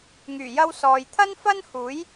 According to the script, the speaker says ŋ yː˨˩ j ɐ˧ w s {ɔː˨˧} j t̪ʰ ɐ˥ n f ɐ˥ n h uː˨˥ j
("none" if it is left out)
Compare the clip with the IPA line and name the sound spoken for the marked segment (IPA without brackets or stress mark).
ɔː˨